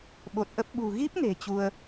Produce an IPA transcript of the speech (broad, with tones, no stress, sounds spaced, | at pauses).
ɓ o˨˩ t̚ ʔ ə˦˥ p̚ ɓ ṳ˨˩ ɣ i˦˥ p̚ n e̤˨˩ t͡ɕ u˧ ə̯